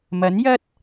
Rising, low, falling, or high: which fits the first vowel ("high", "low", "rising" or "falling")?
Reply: rising